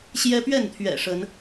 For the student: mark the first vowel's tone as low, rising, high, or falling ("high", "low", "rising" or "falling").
high